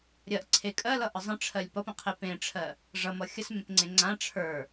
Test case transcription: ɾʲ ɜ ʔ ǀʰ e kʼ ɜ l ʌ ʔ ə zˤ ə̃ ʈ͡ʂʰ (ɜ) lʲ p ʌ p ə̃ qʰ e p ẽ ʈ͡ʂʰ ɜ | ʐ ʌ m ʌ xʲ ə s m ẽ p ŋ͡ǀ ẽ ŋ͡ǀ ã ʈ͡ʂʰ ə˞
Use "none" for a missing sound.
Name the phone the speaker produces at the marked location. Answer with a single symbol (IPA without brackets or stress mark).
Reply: ɜ